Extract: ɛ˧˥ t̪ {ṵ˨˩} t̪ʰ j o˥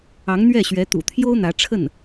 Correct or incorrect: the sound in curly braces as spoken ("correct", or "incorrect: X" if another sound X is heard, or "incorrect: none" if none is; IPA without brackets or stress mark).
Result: correct